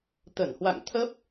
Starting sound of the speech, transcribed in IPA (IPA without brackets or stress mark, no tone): t̪